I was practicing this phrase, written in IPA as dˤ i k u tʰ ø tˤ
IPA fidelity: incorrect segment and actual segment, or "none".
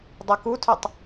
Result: none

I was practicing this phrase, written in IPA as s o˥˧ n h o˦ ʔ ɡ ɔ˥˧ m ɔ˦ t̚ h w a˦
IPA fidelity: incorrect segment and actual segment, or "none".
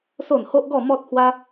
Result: none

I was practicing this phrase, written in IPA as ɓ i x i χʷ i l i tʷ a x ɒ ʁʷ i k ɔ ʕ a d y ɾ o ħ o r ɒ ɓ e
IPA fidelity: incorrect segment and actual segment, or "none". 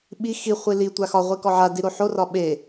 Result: y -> i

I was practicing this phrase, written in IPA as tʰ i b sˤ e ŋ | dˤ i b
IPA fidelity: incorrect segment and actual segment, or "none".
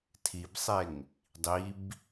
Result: none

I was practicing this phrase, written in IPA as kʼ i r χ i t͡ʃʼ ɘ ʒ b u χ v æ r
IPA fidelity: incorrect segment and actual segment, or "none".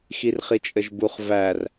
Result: kʼ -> x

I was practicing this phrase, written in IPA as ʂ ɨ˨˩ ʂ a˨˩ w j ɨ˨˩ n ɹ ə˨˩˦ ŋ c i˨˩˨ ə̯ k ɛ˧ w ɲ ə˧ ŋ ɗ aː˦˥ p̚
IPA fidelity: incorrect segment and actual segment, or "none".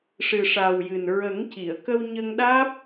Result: ɛ˧ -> ə˧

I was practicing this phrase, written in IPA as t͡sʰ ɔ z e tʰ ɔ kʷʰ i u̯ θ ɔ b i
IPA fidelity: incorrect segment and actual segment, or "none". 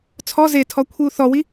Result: b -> w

